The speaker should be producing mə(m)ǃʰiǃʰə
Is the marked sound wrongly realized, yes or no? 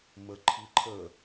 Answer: yes